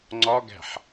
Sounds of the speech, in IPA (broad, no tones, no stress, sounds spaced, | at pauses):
ŋ͡ǀ ɒ ɡ æ̤ ħ